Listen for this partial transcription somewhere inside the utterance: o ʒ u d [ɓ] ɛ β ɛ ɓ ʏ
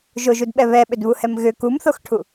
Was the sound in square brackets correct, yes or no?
yes